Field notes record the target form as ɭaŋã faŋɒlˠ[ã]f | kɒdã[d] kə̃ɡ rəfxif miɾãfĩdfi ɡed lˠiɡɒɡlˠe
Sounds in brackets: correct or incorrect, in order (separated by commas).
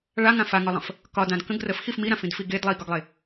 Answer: incorrect, correct